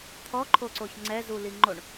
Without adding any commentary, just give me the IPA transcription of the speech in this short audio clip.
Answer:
t̪ʰɔǃʰoǀoç ŋ͡ǀɛzuli ŋ͡ǃoɳ

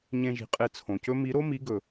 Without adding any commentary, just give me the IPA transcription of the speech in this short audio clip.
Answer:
ɲẽ˧ʒi̤˨qʼe˧ t͡sʰõ˨cɵ˦ mi˨˦ɾo˦mi˨˦ ɡɵ˨

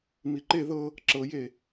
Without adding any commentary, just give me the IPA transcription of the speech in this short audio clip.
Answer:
miǃe ðɤ | ǁɤje

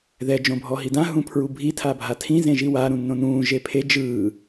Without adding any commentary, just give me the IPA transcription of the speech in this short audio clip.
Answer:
ðɛ d͡ʒõbʱɔɦidã ɦũpʰɹubʱi tʰabʱatʰĩ zẽʒiwaː ɾũnːõnũː ʒepʰe d͡ʒɯː

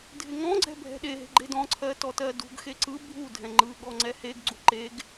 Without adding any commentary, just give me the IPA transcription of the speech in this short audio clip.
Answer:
dʱɪŋɔ̃ɡ͡ǀɛ̤ bʱɛ̤ɗeɦe̤ ɡ͡ǃedɔ̃ǀʰɜ tɔtɜdṳɡxe ǀɯ bʱu dʱɛ̃ŋ͡ǃɯɠɔ ŋ͡ǀɛheɡɡ͡ǀu ǃeɡ

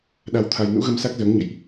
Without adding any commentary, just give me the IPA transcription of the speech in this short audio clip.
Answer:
ɗa˧wt̪ʰa˧j nṵ˧˥ɣə˧msa˦˥k̚zəː˨˦ŋ ɲə̰˧˨jʔ

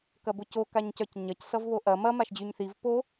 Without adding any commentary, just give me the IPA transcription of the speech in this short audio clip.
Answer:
kɐboco kaɲcœcɲɐc sʌvβoʔɐ mɐ maʃd͡ʑyɲθiv po

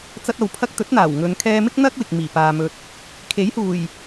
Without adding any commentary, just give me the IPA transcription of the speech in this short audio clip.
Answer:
t͡sɐ˧t̚ɐ˨w pʰɐ˧k̚t̪ɵ˨˥t̚n̪aː˨˩w ŋɵ˨˧n kʰɛː˧mɪ˥k̚n̪ɐ˥k̚ wɪ˨k̚miː˨˩paː˨mɵ˨t̚ | kʰe˨˥jhuː˨˩j

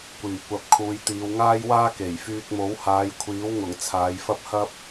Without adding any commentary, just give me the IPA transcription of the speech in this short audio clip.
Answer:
kʷiː˨˩kʷɐ˨p̚ kʰuː˨˧jt̪iː˨˧wŋaː˥jwaː˥ ke˨˩j fyː˧k̚mo˨˥whaː˨˧j kʷʰiː˨˥wŋʊ˨˩ŋ t͡sʰaː˨˧jfɐ˥p̚hɐ˥p̚

